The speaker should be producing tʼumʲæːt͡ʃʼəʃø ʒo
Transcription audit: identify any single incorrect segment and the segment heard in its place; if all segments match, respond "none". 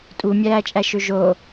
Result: ə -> æ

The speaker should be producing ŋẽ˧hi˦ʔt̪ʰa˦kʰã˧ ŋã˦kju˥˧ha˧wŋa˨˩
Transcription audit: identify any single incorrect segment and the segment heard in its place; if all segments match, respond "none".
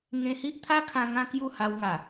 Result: none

